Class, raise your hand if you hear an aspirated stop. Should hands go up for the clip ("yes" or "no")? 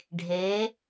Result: no